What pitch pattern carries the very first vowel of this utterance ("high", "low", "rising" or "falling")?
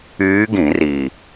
rising